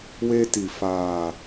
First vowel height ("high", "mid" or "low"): mid